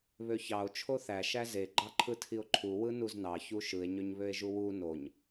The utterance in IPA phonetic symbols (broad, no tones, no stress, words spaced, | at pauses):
βøçɑo̯ t͡ʃʰoθæ ʃæze ɡ͡ǃɑǃʰɯtʰio̯ǃʰu wɯnuznɑ çuʃɯe̯ ɲøɲβøe̯ʒuwu noɲ